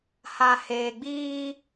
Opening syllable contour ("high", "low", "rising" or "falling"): low